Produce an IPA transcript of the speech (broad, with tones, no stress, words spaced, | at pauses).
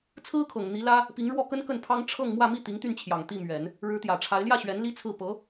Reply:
t͡sʰɹ̩˥kʰɤ˨˩ŋ n̪i˧˥lä˥ | pi˧˥ŋɻwɔ˥˩ kə˥n kə˥˩npʰɑ˥ŋ ʈ͡ʂʰɤ˥˧ŋ mwä˥˧ mi˥˩t̪i˧˥ŋ t̪y˥˩nt͡ɕʰjɑ˨˩ŋ t̪i˥˩mɥɛ˨˩˦n | ɻɻ̩˧˥t̪jä˨˩ʈ͡ʂʰa˧˥ɪ̯ ljä˥˩ɕɥɛ˧˥n li˥t͡sʰɹ̩˥˩ pɤ˧˥